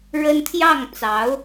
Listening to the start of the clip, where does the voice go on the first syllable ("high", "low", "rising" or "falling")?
high